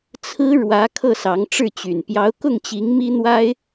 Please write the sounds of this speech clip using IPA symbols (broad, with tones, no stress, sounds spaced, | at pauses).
t͡sʰ ɹ̩˥ ɻ w ä˧˥ kʰ ɤ˥˩ s ɑ˧˥ ŋ ʈ͡ʂ ɻ̩˥˩ t͡ɕ y˨˩ n p j ɑ˧˥ ʊ̯ k ʊ˥˩ ŋ t͡ɕ i˧˥ ŋ m i˥ n̪ w a˥ ɪ̯